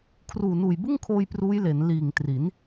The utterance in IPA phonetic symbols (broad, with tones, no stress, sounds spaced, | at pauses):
kʰ r uː˨˩ n uː˨˩ j b ɯ˥˩ ŋ kʰ oː˧ j p r uː˦˥ j l e˩˦ n l iː˨˩ ŋ t r i˩˦ n